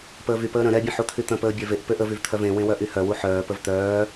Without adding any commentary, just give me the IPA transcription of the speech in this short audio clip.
p əː v y p əː ɾ ə̃ ɾ ɛ bʲ ə̃ ħ u t̪ʰ y t̪ ə̃ p əː bʲ ɛ v e ʔ p ø ʔ ə v y v t̪ʰ œ v ẽ w ẽ w œ ʔ y h œ w u ħ œː p ə v t̪ œː

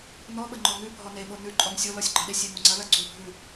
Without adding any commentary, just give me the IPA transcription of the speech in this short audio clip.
n ɔ ɓ ə ŋ͡ǃ ɔ ŋ ʉ bʱ ɔ n e ɓ o n ʉ ǃʼ ɔ ŋ sʲ o l ɔ sʲ ɡ͡ǃ ɑ ɗ e sʲ e ŋ o ŋ͡ǀ ɐ l ɐ ɡ͡ǀ u bʱ ʉ

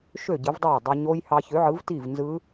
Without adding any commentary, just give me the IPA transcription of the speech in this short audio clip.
ʃ ø˥˩ ɟ ɯ˨˥ v dˤ æ˥˩ j dˤ i˧ ɲ o˦˥ j h ɑ˧ ç ø˨˥ ʕ ɯ˨˥ v t i˥˩ v n z ɯ˦˥

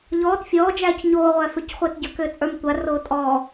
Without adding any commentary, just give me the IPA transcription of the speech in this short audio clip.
ʎ ɔː t fʲ ɔː d͡ʒ æː c ɲ oː ʁʷ æ f ʏ c χʷ æ t ɟ ə˞ k ʏː t͡sʼ ə˞ m tʷ a r oː tʼ ɔː

